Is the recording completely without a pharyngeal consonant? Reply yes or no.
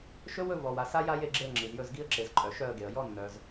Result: yes